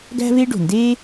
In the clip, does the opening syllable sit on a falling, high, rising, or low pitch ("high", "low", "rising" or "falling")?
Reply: high